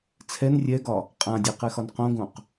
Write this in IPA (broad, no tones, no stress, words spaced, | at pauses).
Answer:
t͡sʰɛn rʲɛɡɒ | qʼãdʲɐqɛxɒn qõɡõq